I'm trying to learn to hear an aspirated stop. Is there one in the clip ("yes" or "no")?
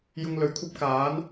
yes